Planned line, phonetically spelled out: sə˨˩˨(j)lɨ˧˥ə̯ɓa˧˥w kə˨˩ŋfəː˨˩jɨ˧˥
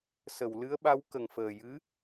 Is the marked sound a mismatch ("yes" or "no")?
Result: yes